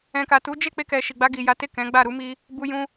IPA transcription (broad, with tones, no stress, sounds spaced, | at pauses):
ɛ̃˨ k a˨ t u˨˦ d͡ʒ e˦˨ k͡p e˧ k ɛ˨ ʃ i˨ ɡ͡b a˧ ɡ i˨ j a˨˦ t e˦˨ k ɛ̃˨˦ ɡ͡b a˦˨ ɾ u˨˦ m i˧ | b u˧ j ũ˧